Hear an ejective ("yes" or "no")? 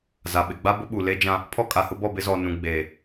yes